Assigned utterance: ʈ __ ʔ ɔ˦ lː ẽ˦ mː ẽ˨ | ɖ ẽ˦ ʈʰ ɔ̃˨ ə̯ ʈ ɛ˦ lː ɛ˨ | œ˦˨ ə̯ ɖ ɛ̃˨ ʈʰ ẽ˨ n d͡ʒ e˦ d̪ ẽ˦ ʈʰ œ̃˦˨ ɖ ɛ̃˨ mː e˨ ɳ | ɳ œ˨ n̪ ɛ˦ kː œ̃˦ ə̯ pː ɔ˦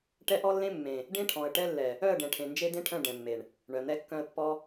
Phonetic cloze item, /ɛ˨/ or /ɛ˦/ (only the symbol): ɛ˦